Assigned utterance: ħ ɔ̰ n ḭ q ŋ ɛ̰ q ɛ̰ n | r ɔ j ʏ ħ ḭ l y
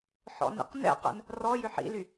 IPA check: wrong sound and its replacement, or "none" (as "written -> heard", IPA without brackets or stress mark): ŋ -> n